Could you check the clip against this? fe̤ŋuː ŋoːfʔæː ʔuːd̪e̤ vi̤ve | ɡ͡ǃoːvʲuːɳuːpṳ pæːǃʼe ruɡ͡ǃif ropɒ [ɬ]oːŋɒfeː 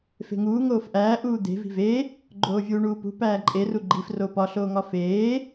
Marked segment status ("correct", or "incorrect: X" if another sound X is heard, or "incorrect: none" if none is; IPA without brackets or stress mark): correct